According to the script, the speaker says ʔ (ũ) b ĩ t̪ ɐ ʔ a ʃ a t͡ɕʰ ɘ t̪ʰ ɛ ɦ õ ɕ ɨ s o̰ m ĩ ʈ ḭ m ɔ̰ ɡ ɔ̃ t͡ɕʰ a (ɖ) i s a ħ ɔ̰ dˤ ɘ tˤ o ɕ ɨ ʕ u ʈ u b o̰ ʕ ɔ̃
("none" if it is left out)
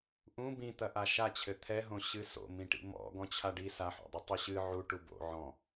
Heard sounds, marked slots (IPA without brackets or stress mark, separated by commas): ũ, ɖ